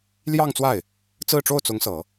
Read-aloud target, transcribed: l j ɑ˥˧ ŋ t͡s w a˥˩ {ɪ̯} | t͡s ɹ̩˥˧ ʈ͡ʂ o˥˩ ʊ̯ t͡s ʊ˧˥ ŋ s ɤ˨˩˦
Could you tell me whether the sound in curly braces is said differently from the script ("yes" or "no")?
no